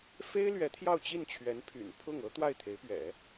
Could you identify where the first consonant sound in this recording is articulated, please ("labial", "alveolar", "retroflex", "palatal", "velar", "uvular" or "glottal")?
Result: labial